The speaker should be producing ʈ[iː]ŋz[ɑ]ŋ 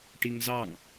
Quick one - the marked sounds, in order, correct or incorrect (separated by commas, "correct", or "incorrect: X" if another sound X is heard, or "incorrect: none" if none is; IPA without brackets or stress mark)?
incorrect: i, correct